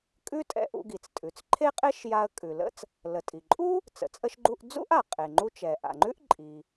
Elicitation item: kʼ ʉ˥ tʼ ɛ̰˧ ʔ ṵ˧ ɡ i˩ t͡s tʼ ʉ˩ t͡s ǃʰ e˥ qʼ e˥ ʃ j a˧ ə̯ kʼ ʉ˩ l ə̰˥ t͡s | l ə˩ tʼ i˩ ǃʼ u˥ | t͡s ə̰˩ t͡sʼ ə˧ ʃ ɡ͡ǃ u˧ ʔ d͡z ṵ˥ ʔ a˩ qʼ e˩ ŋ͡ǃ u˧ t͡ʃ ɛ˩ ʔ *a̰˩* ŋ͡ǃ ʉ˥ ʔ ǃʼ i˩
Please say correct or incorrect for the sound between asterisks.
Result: correct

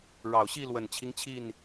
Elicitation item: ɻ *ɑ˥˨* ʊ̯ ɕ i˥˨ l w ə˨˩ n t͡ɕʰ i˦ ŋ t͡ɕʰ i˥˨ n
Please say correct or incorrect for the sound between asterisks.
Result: incorrect: ɑ˨˩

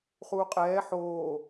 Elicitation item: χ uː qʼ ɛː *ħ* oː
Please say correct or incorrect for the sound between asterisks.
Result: correct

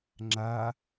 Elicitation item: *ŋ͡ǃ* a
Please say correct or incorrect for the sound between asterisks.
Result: incorrect: ŋ͡ǁ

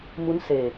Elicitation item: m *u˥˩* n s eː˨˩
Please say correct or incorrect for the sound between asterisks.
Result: incorrect: u˦˥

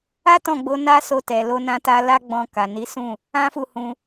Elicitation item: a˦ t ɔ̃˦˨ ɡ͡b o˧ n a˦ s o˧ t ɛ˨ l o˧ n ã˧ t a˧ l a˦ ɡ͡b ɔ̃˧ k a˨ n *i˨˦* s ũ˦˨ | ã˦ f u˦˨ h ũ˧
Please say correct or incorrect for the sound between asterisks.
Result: correct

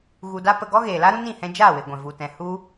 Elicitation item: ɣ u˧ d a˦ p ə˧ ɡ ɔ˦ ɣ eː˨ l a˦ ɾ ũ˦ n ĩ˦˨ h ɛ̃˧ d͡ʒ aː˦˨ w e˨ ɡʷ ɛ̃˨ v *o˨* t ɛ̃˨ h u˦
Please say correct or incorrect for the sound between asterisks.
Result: incorrect: u˨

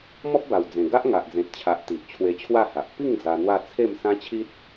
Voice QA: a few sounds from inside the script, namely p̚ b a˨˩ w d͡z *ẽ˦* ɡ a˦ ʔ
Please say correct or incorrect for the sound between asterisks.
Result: incorrect: ẽ˨˩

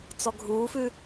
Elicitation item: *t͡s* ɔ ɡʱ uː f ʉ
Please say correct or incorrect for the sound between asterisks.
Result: correct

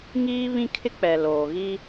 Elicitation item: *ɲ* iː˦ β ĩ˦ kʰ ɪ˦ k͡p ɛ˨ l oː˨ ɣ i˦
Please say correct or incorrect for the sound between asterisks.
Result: incorrect: ŋ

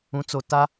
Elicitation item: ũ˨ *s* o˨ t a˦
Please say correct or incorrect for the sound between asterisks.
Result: incorrect: t͡s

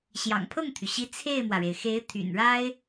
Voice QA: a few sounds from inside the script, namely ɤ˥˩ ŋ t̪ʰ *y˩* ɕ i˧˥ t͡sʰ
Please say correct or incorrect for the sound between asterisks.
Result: correct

